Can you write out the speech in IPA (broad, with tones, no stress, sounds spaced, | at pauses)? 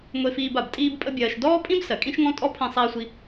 ŋʷ e˧ f iː˧ b a˩ b tʼ iː˥ b pʼ ə˥ bʲ ɜː˧ ʃ d ɔː˥ pʼ ĩ˥ b s ɜ˩ kʼ ĩ˥ ʃ ŋ ɔ̃˥ tʼ ɔ˥ pʰ ĩ˧ sˤ iː˧ sʷ i˧